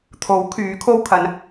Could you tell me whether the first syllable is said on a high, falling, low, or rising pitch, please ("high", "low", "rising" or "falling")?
rising